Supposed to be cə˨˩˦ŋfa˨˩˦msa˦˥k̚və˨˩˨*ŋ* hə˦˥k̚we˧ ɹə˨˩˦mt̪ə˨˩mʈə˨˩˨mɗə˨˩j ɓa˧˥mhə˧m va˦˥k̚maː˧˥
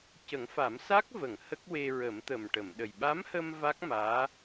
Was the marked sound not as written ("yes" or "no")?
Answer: no